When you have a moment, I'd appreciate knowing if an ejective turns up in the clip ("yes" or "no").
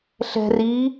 no